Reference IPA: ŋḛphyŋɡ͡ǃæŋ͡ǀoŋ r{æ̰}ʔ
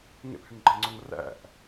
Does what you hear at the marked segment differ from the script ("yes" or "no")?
no